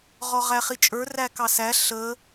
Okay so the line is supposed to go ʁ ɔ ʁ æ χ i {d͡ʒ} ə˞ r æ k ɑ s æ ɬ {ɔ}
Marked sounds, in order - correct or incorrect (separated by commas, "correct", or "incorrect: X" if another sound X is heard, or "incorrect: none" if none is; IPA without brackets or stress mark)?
incorrect: t͡ʃʼ, incorrect: ə